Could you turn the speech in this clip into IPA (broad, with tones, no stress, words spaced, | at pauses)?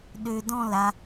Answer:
ɗø˧dɔ̃˥˨la˧